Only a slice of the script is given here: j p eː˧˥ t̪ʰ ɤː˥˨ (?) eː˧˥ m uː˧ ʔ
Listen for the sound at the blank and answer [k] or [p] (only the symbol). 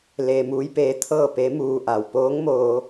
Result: p